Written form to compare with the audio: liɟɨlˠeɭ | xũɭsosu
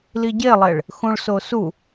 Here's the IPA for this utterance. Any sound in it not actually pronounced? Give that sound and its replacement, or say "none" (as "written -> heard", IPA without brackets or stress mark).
ɨ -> e